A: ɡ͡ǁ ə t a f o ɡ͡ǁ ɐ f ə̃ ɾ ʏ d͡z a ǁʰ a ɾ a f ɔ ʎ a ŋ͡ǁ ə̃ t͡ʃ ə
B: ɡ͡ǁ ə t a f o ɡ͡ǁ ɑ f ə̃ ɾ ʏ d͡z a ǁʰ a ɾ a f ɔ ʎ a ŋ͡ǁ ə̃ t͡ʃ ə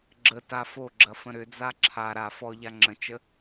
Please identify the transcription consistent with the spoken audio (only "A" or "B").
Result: A